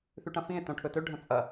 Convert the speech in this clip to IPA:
θ ʉ ʈ ɐ̃ f ĩ e̯ t õ ʈʰ ɵ t ɵ ɖʱ ɐ̃ t͡sʼ ɐ

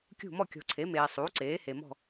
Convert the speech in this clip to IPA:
kʲ ṳ˥˨ m ɔ˥˨ kʲ ɔ̤˨ ǀʰ e˩˥ m eː˨ sˤ uː˩˥ ǀ eː˩˥ h e˨ m ɔ̤˥˨

